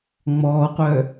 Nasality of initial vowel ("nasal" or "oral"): oral